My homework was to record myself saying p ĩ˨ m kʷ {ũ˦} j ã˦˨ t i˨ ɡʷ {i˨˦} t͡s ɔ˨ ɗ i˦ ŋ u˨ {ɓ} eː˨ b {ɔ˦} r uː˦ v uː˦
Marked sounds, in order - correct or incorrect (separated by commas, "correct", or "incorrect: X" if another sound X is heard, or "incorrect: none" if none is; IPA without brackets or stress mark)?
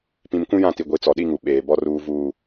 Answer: correct, correct, correct, correct